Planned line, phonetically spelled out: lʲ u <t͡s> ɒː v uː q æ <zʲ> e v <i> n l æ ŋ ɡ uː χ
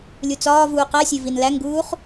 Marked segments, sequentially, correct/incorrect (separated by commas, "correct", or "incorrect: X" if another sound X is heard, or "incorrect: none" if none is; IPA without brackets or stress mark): correct, incorrect: sʲ, correct